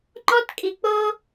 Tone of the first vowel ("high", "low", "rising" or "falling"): high